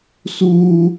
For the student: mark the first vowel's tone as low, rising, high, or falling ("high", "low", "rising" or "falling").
high